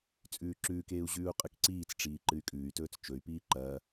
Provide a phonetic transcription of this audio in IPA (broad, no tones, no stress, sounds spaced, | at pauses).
t͡sʼ ʉː ǁ ʉː k eː u̯ ʑ ʉː u̯ qʼ ɨ k ǀ iː t͡s ʈ͡ʂ iː ǃ ɨ y̯ kʼ ʉː y̯ t ɵː t͡s t͡ʃ ɵ y̯ p iː ǃ ɐː